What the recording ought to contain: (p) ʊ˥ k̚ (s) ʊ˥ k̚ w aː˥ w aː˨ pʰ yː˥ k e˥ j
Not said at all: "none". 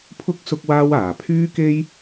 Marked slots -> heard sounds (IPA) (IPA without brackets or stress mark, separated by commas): pʰ, s